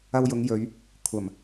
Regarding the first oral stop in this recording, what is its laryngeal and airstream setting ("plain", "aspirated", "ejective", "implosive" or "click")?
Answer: aspirated